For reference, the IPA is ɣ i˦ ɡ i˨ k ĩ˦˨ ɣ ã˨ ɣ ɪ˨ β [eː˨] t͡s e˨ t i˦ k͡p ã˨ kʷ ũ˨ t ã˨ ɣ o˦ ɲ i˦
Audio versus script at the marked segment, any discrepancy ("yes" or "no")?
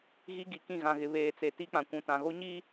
no